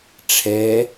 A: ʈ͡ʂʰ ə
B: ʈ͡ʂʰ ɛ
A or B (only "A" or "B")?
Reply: B